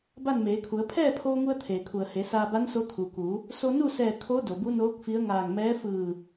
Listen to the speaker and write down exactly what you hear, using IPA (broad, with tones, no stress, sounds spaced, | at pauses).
b a˥˨ n m eː˩˧ kʰ u˩˧ ə̯ pʰ ɛː˥˨ pʰ oː˧ ŋ u˧ ə̯ t̪ʰ eː˩ kʰ u˩ ə̯ h e˩˧ s aː˧ b a˧˥ n s o˧ t̪ʰ u˩ k u˩˧ | s o˧ n u˥˨ s ɛː˧˩ kʰ o˧˥ d o˩ b u˧˥ n oː˧˥ k̚ f i˧˥ ə̯ ŋ aː˧˩ ŋ m ɛː˧˥ f ɯː˧˩